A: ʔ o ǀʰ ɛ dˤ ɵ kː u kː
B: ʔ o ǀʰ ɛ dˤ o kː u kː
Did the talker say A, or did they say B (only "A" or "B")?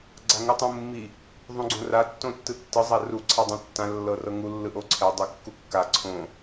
B